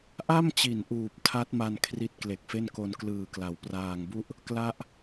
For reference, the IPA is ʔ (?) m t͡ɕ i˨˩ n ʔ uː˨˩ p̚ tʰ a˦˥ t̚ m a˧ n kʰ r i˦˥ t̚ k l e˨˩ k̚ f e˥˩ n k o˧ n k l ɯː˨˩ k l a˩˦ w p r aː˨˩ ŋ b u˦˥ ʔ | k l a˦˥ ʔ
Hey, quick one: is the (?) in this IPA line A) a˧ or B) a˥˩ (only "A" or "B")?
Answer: B